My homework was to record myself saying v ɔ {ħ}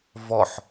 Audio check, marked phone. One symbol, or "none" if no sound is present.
ħ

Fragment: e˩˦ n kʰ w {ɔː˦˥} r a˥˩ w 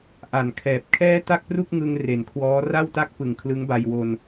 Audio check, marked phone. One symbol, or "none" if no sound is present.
ɔː˦˥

